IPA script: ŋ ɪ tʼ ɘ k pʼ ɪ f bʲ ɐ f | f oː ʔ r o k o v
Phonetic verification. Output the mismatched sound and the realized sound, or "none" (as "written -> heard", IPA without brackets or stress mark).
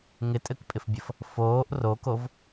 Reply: none